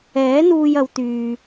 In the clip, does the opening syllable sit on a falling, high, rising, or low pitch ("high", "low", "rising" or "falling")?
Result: rising